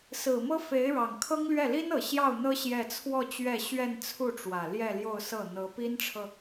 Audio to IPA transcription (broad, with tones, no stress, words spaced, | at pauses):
sɹ̩˨˩mɤ˥ fe˧˥ɪ̯ɻɑ˨˩ŋkʰɤ˥ŋlɥɛ˥˩ li˥n ɤ˨˩ɕjɑ˥˩ʊ̯n̪ɤ˥ ɕjɛ˥˧ t͡sʰwɔ˥˧ t͡ɕɥɛ˥˧ɕɥɛ˥˧nt͡sʰu˥˩ʈ͡ʂwä˨˩ ljɛ˥˧ljo˥˧ʊ̯sɤ˥˩ n̪ɤ˧˥ pi˥nʈ͡ʂʰɤ˨